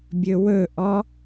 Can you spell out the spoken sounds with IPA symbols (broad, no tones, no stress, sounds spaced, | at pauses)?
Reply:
bʲ ɵ w ɵ ʔ ɔ